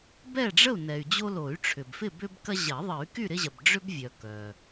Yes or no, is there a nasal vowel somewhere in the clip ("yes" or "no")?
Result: no